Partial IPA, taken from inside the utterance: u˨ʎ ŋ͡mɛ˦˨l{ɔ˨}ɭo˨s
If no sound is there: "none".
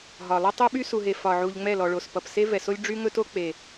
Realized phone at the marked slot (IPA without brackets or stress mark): ɔ˨